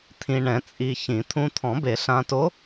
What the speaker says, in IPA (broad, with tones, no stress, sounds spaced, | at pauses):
t̪ʰ ĩ˧ ɳ ɛ̃˨˩˦ t͡sʼ i˧ ç ĩ˨˩˦ t̪ʰ ũ˧ t̪ʰ ɔ̃˨˩˦ b e˨˩˦ ɬ ã˧ t o˧˥